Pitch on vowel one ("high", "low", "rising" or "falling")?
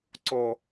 low